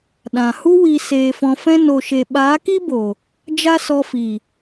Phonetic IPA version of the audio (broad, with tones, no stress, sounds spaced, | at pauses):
ɗ ã˨ h u˦ w i˧ s eː˧ f ɔ̃˧ f ɛ̃˦ n o˨ ʃ e˨ ɓ aː˨˦ k i˦ b oː˨ | d͡ʒ a˦ s ɔ˧ f iː˨